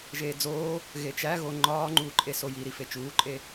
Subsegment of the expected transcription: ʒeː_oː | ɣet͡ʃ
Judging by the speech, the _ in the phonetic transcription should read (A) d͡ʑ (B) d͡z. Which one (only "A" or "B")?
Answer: B